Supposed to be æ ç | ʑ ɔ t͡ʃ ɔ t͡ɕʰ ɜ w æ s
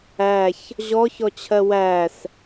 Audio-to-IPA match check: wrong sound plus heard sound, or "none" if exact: t͡ʃ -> ç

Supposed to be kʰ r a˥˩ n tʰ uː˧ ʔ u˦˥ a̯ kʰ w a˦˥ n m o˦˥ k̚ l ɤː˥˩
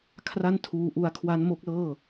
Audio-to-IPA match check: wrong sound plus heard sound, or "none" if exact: none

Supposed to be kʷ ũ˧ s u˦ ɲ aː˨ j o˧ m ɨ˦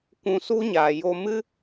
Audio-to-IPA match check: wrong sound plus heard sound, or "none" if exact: none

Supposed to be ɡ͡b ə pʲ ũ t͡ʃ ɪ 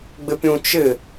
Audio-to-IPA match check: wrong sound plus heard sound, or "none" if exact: ə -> ɪ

